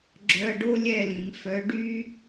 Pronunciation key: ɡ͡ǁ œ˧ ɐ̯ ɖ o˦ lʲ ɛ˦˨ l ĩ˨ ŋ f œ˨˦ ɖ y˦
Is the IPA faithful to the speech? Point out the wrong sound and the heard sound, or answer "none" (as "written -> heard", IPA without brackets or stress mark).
none